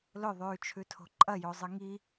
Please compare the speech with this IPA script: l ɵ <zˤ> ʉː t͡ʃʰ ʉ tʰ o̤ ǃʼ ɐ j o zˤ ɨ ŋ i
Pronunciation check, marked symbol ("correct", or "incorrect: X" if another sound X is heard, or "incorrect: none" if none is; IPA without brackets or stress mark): incorrect: ðˤ